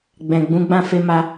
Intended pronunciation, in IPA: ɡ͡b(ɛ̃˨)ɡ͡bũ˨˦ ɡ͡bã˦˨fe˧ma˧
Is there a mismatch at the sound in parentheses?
no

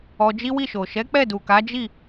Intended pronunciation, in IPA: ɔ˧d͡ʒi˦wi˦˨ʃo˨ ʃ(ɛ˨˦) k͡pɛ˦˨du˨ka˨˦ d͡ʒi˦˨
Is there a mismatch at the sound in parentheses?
no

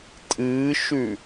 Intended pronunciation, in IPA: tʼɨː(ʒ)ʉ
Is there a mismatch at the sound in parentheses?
yes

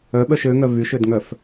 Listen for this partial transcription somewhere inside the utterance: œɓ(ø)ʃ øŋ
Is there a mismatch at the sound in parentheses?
yes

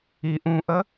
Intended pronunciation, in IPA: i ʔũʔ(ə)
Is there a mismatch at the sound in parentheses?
no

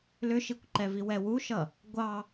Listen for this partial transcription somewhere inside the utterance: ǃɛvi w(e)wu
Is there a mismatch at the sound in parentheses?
yes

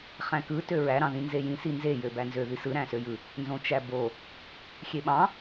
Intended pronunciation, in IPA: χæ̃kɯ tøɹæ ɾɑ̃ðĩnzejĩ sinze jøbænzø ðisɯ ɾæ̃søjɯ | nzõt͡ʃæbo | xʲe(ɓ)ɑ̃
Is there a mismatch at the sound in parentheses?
no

